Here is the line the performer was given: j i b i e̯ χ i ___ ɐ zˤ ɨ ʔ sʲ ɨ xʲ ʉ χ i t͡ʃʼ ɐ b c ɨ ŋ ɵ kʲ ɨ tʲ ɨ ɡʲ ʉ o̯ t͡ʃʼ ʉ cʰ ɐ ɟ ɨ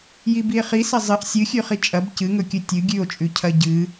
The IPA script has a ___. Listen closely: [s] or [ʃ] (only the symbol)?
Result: s